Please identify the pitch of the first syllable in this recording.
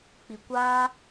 low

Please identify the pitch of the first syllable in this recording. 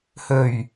low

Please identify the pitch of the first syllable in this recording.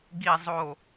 low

